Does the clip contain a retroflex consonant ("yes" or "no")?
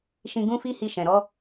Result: no